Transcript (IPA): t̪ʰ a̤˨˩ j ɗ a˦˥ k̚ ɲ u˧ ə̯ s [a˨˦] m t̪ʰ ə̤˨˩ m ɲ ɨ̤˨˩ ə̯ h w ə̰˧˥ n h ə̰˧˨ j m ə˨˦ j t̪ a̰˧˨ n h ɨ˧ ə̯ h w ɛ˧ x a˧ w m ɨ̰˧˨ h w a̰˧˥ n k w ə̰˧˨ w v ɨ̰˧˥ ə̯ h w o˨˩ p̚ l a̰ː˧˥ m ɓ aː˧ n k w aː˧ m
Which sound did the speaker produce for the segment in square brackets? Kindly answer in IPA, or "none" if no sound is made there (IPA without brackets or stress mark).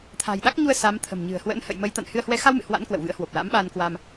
a˨˦